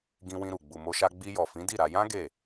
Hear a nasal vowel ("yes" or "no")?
yes